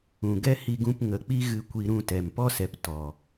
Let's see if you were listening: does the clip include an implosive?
no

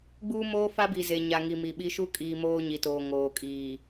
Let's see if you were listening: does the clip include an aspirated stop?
no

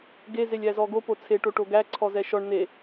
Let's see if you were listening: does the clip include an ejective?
no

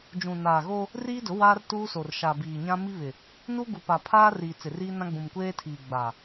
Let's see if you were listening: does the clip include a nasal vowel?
yes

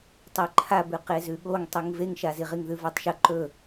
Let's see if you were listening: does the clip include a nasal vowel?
no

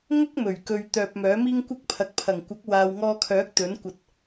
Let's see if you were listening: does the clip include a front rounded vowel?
yes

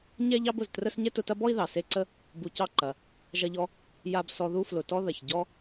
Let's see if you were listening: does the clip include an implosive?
no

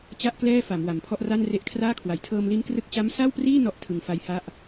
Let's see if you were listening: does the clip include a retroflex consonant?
no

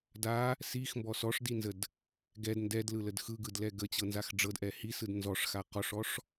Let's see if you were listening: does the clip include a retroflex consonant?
yes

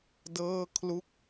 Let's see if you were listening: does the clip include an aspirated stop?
yes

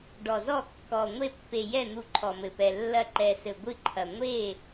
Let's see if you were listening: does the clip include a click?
yes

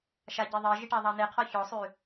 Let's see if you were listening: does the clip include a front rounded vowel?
yes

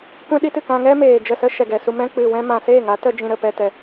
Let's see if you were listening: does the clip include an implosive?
yes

